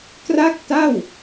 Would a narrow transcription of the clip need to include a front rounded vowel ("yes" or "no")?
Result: no